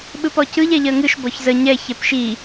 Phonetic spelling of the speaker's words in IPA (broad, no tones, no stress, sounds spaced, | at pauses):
ɓ ɯ p ɔ c ɯ ʎ ɛ ʎ ɜ ŋ ɯ ʃ b ɔ ç z ə ɲ ɛ ç ɛ p ʃ i